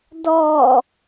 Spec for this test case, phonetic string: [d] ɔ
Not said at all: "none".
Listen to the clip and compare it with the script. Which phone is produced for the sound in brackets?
d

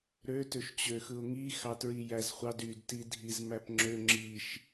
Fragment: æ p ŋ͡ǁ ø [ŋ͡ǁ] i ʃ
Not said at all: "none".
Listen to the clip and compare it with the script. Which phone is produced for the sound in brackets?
ŋ͡ǁ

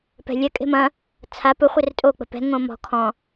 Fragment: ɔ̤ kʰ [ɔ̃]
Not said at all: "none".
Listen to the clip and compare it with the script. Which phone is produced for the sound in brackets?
ɔ̃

